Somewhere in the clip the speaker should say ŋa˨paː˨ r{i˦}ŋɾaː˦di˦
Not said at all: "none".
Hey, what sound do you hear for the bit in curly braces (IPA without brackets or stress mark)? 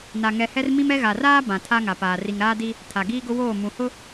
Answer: i˨